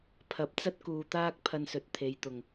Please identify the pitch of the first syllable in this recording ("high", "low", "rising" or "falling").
low